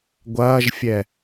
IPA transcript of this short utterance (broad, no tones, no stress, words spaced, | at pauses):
ɡʷɐːʒfʲɛ